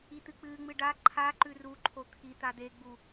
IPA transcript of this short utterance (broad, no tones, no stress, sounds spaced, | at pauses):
i t̪ ɨ k͡p ɨ ŋ͡m ɨ ɖ a ǃʰ a ǃ ʉ r u ǃʰ o t̪ʰ i t̪ a d̪ e ɡ͡b u